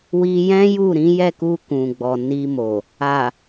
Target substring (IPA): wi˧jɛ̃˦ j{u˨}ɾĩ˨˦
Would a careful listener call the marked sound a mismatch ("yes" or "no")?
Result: yes